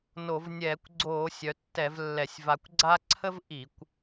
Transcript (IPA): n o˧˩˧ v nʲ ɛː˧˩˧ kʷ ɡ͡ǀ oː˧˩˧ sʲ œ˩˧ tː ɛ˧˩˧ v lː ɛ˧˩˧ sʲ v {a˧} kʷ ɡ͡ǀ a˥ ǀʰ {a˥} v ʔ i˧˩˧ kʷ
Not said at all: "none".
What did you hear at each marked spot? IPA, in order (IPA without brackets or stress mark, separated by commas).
a˧, ə˥